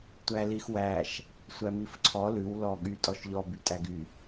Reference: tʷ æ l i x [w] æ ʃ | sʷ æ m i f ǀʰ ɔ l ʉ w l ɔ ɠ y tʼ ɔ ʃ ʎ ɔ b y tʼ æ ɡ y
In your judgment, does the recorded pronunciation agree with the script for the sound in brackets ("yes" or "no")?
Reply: yes